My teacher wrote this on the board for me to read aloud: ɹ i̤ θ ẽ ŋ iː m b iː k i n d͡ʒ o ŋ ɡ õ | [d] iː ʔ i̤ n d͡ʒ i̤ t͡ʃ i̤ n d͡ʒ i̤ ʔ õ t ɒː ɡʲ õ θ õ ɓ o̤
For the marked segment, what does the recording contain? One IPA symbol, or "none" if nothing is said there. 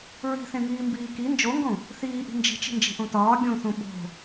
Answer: θ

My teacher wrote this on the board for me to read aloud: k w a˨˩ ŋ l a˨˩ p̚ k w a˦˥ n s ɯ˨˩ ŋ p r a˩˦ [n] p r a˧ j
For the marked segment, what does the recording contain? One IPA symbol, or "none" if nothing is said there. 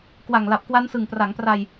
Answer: ŋ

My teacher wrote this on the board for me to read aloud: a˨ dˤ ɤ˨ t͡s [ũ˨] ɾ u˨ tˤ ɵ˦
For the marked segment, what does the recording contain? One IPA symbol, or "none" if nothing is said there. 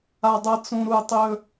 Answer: ũ˨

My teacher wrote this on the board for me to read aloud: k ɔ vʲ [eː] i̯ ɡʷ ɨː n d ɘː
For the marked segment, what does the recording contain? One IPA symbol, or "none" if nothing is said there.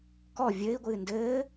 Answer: ɘː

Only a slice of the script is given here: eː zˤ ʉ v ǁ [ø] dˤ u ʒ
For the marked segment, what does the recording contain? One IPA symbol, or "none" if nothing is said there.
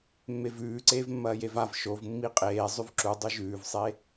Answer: u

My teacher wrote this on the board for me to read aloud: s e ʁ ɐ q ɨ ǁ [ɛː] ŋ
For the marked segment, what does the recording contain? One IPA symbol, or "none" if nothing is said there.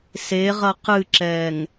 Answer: ɛː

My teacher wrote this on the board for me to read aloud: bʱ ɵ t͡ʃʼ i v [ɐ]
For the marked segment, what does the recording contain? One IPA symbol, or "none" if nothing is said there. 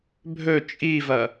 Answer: ɐ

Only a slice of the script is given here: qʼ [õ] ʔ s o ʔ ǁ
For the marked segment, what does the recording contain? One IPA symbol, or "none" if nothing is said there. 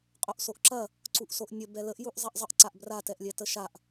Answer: o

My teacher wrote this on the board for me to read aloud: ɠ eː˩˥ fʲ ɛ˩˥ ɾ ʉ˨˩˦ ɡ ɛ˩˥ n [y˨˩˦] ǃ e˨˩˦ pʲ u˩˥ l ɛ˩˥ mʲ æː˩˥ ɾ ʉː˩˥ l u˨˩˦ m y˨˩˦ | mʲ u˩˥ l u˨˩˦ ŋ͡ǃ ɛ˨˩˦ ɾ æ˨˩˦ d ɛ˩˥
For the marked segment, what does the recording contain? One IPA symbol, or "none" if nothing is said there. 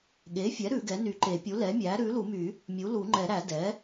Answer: y˨˩˦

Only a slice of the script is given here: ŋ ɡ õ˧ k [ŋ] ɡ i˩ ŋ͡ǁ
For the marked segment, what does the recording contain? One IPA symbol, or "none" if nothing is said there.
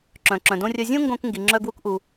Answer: ŋ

